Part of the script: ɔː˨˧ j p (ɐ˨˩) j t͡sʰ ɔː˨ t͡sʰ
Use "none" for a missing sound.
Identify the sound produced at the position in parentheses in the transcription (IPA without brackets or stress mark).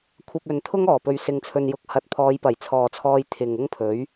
ɐ˨˩